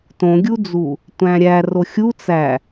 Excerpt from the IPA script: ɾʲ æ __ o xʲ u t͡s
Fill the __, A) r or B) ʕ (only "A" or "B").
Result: A